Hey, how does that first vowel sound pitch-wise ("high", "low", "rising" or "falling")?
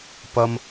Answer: low